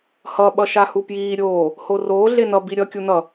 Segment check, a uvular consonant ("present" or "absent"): absent